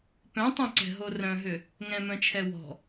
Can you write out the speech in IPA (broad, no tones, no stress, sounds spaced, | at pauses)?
p œ̃ tˤ ɛ̃ ǀ ɛ̤ ɦ o r œ̃ ɦ ʏ | ŋ ɛ̃ m œ̃ t͡ʃʰ ɛ w ɔ̤